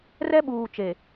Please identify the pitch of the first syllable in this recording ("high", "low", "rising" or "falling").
high